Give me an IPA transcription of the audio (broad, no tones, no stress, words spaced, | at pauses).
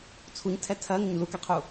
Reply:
t͡sʰuɲtʰɛ tʰɜŋɪɲ lukɛqʰu